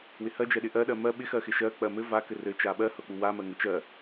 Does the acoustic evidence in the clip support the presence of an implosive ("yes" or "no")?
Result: yes